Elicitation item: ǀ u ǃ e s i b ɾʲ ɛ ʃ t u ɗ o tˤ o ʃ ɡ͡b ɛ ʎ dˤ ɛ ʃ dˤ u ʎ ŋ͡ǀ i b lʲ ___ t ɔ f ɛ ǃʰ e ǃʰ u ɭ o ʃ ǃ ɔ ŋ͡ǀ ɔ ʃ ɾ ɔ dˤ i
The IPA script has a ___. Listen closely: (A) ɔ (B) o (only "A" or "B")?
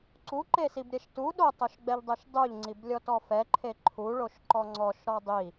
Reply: A